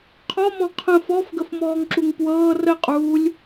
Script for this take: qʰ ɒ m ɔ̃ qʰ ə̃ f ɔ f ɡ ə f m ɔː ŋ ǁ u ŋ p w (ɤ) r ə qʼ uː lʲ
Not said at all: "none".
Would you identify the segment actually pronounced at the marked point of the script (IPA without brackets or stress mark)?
ɤː